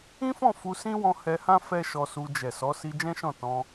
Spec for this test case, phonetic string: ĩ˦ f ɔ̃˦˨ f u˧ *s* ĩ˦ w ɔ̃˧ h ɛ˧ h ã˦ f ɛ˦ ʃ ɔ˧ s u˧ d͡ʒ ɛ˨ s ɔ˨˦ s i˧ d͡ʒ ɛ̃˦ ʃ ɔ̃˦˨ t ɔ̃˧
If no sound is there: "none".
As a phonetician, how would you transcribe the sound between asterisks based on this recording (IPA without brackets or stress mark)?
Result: s